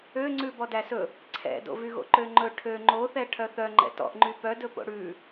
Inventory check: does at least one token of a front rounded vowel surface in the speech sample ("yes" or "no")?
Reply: yes